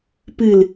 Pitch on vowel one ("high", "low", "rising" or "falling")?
low